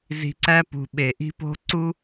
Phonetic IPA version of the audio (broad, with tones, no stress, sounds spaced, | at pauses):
z i̤˧ ǀ æ˦ p ṳ˨ ɓ e˨ ʔ i̤˦ p o̤˦ ǀ u˦